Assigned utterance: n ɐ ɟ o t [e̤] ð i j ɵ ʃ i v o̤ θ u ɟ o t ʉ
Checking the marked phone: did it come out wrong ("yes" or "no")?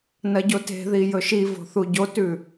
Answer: no